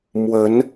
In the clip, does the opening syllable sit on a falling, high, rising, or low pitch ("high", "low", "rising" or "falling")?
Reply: rising